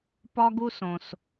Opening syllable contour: high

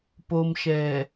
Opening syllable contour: low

